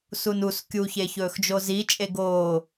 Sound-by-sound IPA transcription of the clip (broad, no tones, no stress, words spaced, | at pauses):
sunus kʲuçeçɵːxd͡ʒo zit͡ʃʼe ɡoː